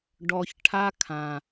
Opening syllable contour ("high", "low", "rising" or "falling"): low